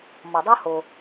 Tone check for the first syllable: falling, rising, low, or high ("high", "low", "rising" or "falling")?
low